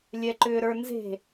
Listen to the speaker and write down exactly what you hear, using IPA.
lʲ ɛ ǃ ʏː ɾ ə˞ n z e̤

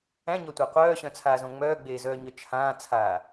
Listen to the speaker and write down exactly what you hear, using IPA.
æ̃ ɲ ɒ tʷ æ qʷ œː ɕ œ̃ t͡sʰ aː z õ ŋ͡m œː ɡ͡b eː z œː ɲ œ t͡ʃʰ ãː t͡sʰ aː

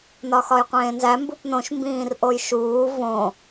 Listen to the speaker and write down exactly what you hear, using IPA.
n ɒ x ɒ j qʷ ẽː n z æ m b u p n õ ʃ m b ĩː r ʔ o j ʃ uː v õ

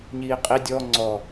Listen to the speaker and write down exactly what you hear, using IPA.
ɲ iː qʼ i dʲ ɔ ŋ͡ǀ ɔ

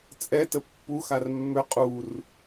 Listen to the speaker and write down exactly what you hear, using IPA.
t͡sʼ ɛ t ə pː u x a r mː ø qʼ u r

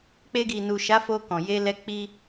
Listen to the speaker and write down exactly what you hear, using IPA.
k͡p e˧ ɡ i˨ n u˨ ʃ a˨˦ f o˧ k ɔ̃˨ j e˧ l ɛ˧ k͡p i˦

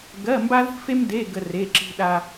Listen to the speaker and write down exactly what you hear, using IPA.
ɡ ɜ˧˥˧ m b a˥ ð i̤˥ f e˥ m d e˧˥˧ ɡ ə˥ r e˧˥˧ ǁ i̤˥ ɗ a˥

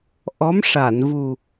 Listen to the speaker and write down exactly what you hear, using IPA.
ʔ ɔ˧˥ m ʂ a˨˩˨ n v u˨˩

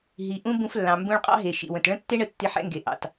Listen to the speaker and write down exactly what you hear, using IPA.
ɦ i˨ ʔ ũ˦ b ũ˧ f lː ɑ̃˨ m b ũ˧ ɭ qʼ ɑ̰˦ ɦ e˨ ʃ ḭ˨ w ə̃˨ t ɭ ə̃˦ tː e˦ ɳ ə˨ tː i˧ ħ ɛ̰˦ ŋ ɡ e˨ ʔ ɑ̰˨ t

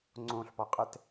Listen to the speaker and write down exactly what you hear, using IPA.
ŋ͡ǀ õ ɬ p ɔ qʼ ɛ t

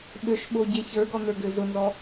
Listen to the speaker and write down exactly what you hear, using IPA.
ɓ ø ʃ ɓ o ɟ e ç ə˞ ɡ ɔ n̪ ə˞ ɡ ø z ʊ n z ɔ

